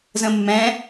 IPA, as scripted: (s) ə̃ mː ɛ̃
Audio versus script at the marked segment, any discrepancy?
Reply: yes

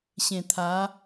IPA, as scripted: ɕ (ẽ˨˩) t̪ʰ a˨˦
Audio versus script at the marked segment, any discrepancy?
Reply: no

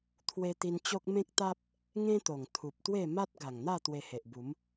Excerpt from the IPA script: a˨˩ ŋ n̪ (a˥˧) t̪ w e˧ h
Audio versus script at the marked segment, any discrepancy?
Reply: no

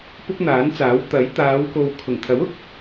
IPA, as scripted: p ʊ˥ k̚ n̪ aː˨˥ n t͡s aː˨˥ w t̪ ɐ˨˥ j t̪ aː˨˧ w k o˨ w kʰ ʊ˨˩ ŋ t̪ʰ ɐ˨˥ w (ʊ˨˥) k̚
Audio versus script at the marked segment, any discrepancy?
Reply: no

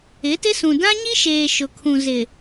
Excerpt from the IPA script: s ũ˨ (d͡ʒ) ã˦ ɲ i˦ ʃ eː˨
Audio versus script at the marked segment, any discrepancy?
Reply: yes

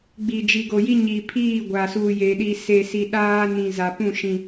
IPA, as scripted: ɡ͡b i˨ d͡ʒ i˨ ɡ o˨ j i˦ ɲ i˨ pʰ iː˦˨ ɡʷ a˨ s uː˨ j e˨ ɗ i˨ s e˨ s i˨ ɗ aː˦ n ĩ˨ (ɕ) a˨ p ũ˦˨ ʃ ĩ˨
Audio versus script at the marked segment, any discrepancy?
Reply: yes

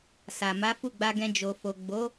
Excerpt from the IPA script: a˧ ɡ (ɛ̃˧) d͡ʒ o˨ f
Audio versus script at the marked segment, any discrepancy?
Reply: no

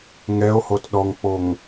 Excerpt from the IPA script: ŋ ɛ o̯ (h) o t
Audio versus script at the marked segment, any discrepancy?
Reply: no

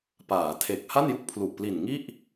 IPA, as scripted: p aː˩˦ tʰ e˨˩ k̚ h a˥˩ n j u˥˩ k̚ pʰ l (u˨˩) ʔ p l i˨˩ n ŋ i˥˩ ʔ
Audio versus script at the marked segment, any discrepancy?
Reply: no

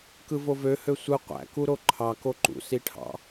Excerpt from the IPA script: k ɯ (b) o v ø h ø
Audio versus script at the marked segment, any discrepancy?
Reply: yes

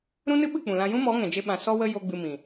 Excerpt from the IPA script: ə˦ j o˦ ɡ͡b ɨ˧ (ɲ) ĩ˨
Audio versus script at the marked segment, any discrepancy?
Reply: yes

